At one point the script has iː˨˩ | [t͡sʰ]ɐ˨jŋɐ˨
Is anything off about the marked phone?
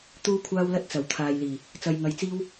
yes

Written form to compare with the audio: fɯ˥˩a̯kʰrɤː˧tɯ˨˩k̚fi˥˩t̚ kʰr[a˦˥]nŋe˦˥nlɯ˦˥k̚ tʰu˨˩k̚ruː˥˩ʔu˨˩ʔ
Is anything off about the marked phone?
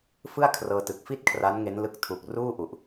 no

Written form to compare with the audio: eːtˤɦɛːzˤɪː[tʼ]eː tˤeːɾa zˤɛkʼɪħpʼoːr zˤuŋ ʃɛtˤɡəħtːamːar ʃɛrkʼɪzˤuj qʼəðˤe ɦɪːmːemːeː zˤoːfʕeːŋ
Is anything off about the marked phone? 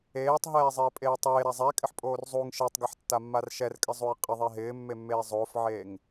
yes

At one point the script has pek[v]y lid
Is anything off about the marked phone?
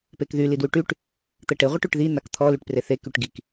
yes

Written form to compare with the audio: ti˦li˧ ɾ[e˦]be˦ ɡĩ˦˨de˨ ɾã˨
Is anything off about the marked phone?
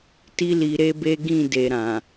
no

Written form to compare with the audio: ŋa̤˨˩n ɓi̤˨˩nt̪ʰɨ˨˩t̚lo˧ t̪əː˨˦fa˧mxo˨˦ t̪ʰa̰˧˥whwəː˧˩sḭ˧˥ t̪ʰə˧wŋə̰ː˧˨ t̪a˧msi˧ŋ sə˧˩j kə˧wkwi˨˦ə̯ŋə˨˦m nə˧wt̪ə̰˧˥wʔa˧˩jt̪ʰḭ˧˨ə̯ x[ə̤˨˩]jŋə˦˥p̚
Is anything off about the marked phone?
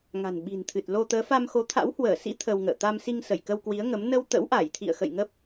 yes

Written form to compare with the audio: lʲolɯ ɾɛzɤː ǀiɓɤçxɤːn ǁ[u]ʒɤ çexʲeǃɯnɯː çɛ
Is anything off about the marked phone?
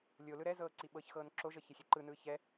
yes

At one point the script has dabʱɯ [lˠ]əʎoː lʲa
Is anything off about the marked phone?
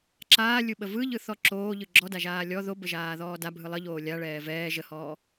no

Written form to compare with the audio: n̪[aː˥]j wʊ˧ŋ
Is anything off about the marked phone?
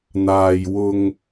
yes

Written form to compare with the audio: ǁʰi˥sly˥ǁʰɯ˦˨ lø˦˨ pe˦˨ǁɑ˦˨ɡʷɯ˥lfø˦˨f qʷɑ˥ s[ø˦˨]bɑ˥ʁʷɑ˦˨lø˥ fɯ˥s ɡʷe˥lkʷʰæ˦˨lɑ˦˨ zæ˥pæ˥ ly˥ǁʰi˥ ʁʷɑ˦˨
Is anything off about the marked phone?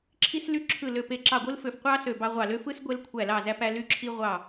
no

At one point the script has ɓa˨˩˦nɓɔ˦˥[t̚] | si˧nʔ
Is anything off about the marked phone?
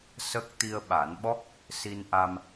yes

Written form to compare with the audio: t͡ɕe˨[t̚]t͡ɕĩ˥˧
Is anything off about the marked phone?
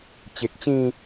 yes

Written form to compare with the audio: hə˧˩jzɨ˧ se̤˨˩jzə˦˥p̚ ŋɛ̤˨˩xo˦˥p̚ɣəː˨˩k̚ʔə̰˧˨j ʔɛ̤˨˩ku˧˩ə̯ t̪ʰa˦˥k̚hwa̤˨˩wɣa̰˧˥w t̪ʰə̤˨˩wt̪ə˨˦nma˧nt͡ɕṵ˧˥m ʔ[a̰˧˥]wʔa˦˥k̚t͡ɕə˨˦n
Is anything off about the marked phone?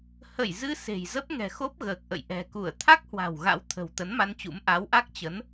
yes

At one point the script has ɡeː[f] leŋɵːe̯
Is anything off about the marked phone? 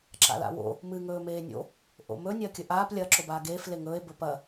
no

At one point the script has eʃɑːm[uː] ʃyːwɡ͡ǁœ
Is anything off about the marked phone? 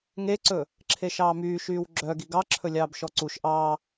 yes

